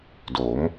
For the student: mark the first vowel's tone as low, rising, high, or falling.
rising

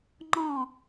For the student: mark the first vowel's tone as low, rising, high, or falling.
falling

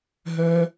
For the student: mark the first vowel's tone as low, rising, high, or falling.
high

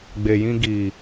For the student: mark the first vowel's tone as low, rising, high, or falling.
low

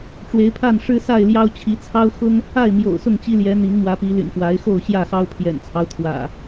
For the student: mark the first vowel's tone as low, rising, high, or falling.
rising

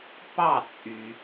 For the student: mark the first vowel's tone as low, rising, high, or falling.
falling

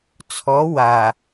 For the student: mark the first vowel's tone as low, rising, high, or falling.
rising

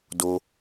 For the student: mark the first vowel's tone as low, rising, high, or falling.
high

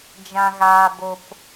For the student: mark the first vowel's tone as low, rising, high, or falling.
low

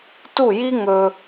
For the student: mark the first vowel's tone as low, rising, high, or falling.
falling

